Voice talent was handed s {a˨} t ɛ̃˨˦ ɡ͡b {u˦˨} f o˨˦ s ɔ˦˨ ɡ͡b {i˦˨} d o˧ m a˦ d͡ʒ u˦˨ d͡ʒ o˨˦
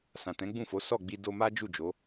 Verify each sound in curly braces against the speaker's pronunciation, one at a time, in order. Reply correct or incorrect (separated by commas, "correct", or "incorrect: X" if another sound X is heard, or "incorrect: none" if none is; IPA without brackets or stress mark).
incorrect: ã˨, incorrect: ũ˦˨, incorrect: i˧